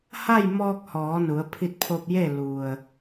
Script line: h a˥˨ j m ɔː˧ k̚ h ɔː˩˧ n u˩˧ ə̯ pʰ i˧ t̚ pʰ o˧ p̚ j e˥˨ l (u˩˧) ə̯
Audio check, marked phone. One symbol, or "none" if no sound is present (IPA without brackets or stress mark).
u˩